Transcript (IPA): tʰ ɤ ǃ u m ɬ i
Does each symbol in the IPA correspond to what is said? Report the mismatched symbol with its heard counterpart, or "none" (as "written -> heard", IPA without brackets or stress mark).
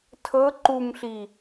none